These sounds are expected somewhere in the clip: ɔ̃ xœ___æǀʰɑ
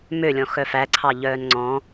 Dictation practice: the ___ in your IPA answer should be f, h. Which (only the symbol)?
f